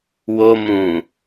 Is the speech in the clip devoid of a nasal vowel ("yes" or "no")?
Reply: no